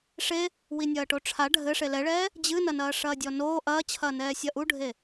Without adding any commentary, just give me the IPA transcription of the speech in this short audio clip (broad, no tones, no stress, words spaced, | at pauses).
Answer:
ʂe | winʲɐːʈoʈ͡ʂʰa ɖʱɘ ʂelɛɭɛː | d͡ʑɨnɐnɐː ʂɐːdʲɔnoː ʔɐːt͡ɕʰɐːnɛː sʲɐʔuɖʱe